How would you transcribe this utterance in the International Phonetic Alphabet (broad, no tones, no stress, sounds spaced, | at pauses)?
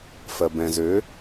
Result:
f ɜ b ɛ̃ z ø